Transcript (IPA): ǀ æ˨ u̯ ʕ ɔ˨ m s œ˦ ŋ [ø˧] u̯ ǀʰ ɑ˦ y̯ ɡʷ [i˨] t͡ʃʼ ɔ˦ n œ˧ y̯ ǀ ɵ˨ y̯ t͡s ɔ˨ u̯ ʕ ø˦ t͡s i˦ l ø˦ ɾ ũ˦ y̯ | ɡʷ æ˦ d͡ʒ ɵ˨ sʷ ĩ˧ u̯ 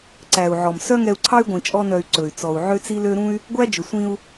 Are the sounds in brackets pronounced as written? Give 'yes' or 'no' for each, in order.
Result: no, no

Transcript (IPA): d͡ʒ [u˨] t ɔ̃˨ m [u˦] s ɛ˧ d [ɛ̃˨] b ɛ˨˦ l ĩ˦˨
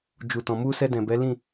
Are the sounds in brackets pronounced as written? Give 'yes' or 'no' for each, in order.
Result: yes, no, yes

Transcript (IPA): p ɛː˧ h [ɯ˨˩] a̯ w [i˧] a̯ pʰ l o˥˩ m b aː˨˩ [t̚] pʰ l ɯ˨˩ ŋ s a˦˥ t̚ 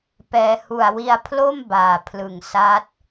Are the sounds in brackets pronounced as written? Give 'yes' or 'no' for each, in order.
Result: no, yes, no

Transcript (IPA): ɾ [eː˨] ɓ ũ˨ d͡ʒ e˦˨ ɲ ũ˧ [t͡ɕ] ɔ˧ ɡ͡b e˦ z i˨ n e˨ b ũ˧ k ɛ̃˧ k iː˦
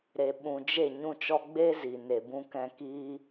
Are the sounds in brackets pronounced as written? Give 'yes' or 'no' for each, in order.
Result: no, no

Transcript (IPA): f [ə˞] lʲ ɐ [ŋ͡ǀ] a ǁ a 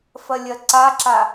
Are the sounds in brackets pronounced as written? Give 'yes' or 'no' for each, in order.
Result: no, no

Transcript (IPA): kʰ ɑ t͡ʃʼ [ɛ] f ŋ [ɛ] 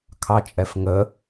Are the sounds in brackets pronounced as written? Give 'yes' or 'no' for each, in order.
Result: yes, no

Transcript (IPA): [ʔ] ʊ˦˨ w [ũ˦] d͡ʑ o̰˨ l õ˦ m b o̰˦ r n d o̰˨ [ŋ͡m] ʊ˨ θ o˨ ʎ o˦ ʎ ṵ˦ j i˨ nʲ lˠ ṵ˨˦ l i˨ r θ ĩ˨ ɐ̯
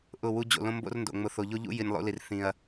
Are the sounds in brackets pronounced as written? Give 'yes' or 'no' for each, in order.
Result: yes, no, yes

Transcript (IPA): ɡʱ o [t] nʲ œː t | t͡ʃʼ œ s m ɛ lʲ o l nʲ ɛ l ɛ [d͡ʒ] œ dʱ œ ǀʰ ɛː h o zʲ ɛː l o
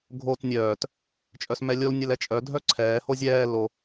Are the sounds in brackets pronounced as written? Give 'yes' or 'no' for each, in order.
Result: yes, no

